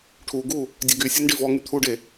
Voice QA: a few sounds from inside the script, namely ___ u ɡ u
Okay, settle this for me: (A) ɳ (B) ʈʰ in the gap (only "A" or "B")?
B